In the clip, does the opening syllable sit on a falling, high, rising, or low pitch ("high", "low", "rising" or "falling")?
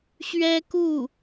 high